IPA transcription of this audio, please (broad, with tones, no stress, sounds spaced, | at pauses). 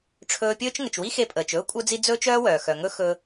ʈ͡ʂʰ ɵː˧ pʲ ɵː˥ t͡ʃ ŋ ə˩ t͡ʃ w i˥ x e˧ pʼ əː˩ t͡ʃ ɵː˥ kʷʼ œ˥ d͡z i˥ d͡z ɵː˥ t͡ʃ œː˥ w œː˩ x œ˩ ŋ ɵ˥ x ɵ˧